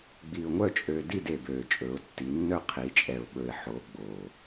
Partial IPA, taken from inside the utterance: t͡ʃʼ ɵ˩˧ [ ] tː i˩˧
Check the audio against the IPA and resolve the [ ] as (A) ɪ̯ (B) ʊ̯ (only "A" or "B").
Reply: B